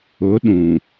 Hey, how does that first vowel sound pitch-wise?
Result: rising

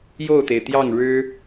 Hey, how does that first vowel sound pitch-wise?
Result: falling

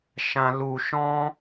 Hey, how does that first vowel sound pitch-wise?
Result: high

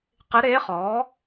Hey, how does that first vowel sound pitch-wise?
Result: rising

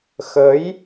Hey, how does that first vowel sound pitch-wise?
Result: rising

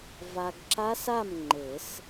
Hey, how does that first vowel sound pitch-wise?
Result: low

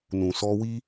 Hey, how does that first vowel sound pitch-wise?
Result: low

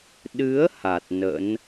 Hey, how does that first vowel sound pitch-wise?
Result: rising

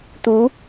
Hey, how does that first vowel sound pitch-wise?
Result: rising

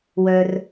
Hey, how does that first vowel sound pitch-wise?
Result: low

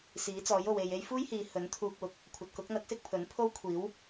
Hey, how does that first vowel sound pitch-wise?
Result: rising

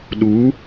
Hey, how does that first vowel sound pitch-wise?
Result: rising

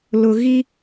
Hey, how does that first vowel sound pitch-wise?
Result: low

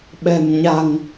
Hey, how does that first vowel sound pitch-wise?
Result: low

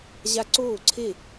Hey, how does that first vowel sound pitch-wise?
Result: high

